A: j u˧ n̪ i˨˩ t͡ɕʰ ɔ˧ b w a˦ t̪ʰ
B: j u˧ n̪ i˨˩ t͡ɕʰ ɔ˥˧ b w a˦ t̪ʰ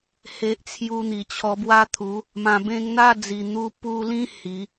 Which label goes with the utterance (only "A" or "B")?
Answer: A